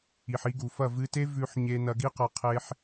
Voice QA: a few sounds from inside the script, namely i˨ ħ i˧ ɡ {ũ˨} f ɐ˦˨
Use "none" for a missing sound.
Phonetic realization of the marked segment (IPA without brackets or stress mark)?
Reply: u˨